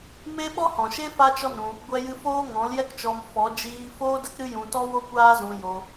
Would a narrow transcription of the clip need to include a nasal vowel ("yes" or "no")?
yes